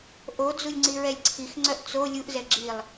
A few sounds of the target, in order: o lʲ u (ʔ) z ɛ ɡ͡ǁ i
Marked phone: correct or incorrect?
correct